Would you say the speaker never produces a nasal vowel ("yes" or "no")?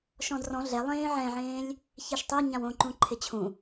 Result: no